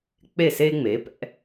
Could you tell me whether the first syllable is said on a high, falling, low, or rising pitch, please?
falling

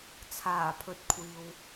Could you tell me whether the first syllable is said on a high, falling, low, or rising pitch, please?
low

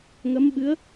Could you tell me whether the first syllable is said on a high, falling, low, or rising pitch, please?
rising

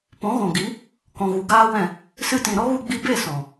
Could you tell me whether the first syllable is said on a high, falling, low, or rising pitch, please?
rising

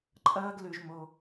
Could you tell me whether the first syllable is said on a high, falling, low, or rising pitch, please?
high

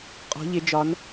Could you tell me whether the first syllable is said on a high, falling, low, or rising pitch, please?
rising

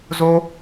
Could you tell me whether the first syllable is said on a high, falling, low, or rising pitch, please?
high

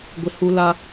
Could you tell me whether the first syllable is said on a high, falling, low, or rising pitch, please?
high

